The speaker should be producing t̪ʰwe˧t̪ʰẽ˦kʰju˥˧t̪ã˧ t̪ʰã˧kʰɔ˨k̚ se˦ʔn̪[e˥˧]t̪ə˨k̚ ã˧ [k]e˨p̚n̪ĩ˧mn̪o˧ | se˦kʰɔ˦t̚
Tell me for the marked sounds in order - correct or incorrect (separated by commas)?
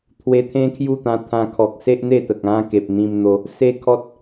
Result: correct, correct